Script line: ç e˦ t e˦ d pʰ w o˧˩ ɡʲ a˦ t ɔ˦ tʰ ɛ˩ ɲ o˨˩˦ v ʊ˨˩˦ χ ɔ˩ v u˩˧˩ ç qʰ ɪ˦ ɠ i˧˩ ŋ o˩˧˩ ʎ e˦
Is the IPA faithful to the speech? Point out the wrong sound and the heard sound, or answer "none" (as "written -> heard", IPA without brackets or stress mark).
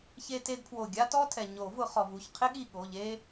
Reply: ŋ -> ɠ